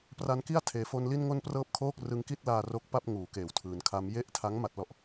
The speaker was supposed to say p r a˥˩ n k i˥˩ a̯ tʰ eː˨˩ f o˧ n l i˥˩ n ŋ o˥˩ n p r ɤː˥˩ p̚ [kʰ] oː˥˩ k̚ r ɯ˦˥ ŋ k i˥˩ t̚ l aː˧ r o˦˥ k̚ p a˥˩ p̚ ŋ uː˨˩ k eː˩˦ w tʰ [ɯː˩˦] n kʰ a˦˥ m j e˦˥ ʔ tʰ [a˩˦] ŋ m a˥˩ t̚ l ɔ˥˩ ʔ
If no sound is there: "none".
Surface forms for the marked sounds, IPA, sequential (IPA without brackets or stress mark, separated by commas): kʰ, ɯː˩˦, a˦˥